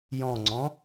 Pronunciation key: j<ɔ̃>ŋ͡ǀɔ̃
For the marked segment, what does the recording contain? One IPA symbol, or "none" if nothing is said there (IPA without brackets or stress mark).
ɔ̃